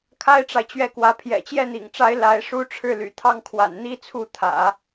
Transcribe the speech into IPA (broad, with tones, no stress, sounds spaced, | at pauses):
kʰ a˥ ɪ̯ ʈ͡ʂ a˨ ɪ̯ t͡ɕ ɥ ɛ˥˩ k w ä˧˥ pʰ j ɛ̰˨˩ t͡ɕ j ɛ˥˩ n̪ ḭ˨˩ ŋ ʈ͡ʂ a˧˥ ɪ̯ l a˧˥ ɪ̯ ʂ u˥ ʈ͡ʂʰ ɻ̩˥˩ l y̰˨˩ t̪ʰ ɑ˥˩ ŋ kʰ w a̰˨˩ n n̪ i˥ t͡sʰ u˥˩ t̪ʰ ä̰˨˩˦